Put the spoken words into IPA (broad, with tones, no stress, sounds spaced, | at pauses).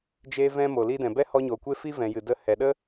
d͡ʒ eː˧ v ɛ̃˧ m o˨ l i˧ d ɛ̃˨ b ɛ˦ h ɔ˧ ɲ o˨ kʷ e˦ f i˦ v ɛ̃˨ j ɨ˨ d ə˧ h ɛ˨ ɗ ə˦